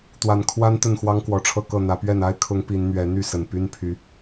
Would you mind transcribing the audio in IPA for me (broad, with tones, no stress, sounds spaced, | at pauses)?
t̪ w a˨˩ n kʰ w a˦ n t̪ ə˥˨ n x w ɑ˦ ŋ k w ɔ˨˩ ʈ͡ʂʰ ɤ˥˨ k ɤ˥˨ n̪ ä˨˦ p ɥ ɛ˥˨ n a˦ ɪ̯ kʰ ʊ˨˦ ŋ p i˨˦ n n̪ ɥ ɛ˨˦ n̪ y˥˨ s ə˨˩ n p y˦ n pʰ y˨˦